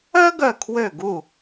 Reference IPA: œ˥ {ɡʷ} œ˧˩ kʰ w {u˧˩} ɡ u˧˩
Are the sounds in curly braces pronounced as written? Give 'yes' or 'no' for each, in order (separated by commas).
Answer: no, no